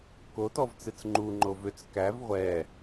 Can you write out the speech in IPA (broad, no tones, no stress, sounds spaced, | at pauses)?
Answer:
k o t ɔ v t͡s ɨ t͡s ŋ͡ǃ u ŋ͡ǃ o v ʏ t͡s k æ v ʁʷ ɛ